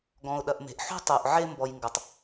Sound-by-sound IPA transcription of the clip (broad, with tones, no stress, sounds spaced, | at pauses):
ɡ ɔ̃˨ ʊ̯ ɗ ɐ˨ ʔ m e̤˨ ʔ ħ ṳ˦ tˤ u˨ ʔ ʕ e˦ m b ɔ˨ j ŋ ɡ ɐ˨ tˤ